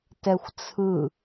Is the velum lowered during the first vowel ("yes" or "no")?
no